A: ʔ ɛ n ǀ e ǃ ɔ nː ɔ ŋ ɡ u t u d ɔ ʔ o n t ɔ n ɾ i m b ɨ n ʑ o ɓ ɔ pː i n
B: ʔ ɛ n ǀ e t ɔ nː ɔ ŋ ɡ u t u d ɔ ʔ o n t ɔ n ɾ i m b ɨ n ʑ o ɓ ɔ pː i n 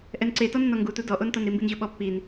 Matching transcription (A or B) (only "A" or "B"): B